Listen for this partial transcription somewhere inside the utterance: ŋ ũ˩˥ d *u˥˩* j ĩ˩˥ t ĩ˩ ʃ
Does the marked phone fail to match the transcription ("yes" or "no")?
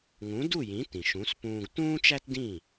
no